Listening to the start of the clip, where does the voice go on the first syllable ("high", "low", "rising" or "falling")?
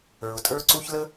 low